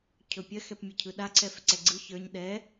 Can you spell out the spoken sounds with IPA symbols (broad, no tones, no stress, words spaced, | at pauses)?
cʰɵpʲɜx ɛpmʲɵcʰɯɗa ǀʰɛfǀɛɡ͡ǀɯ çə˞ɲ ɗɛ